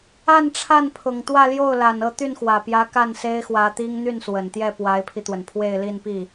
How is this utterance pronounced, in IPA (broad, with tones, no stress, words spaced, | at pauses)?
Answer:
a˥˧nʈ͡ʂʰa˥˩npʰʊ˨˩ŋ t̪wä˥˧ljo˥˩ʊ̯la˨˩n ɤ˥˧ t̪y˥˩nxwä˨˩pjä˧˥ ka˥˩nse˥ɪ̯xwä˧˥t̪i˥ŋ n̪y˥˩nswə˨˩nt̪jɛ˥˩ pwa˧˥ɪ̯pʰi˧t̪wə˩n pʰwe˥˧ɪ̯li˥˧npi˥˩